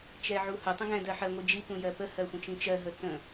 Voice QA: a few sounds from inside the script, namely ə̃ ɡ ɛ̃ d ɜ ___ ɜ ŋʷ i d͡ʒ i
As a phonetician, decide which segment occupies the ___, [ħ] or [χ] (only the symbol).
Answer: ħ